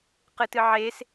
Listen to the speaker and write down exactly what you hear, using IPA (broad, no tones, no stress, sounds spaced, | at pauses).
q ɨ t ɨ ʕ e s